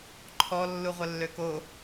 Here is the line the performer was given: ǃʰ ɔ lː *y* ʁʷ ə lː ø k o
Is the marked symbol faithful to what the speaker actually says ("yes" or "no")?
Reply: no